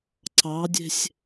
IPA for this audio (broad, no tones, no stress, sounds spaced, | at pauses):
ǀ ɑ dʲ e̤ sʲ